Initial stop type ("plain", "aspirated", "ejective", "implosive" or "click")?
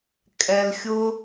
ejective